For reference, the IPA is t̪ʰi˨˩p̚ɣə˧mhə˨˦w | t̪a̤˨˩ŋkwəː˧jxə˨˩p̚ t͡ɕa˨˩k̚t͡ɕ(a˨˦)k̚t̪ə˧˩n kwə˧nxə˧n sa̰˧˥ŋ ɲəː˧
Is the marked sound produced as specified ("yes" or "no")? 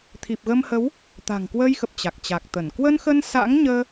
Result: no